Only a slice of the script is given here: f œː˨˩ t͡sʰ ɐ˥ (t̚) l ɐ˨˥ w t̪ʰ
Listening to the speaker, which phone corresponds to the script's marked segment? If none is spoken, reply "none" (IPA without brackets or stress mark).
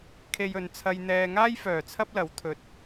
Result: p̚